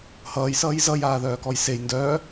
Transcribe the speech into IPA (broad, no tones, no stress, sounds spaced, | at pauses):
h ʌː j s ʌː j z ʌ j aː ð œː k ɔ j s e j n d œ